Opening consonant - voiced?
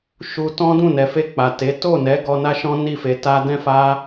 no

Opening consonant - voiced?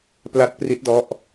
no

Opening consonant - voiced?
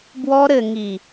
yes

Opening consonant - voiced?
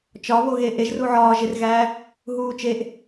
no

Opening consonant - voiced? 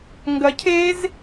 yes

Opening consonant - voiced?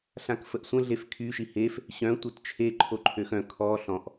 no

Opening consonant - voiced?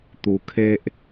no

